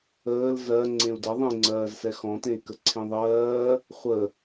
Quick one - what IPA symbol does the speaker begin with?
əː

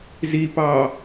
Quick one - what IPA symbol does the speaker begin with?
z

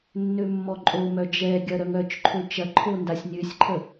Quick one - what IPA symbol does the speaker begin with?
nː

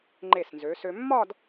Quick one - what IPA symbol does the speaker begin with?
ŋ͡ǃ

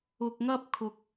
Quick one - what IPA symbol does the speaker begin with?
ʊ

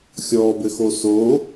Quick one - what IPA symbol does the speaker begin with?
xʲ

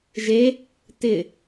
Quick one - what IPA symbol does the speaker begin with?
ʒ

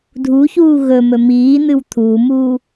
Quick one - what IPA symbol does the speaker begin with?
dʱ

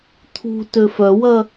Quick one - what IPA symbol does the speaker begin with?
t̪ʰ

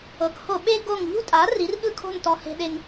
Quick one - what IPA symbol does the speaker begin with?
ɤ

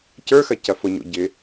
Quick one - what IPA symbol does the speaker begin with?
c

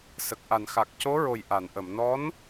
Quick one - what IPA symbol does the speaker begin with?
s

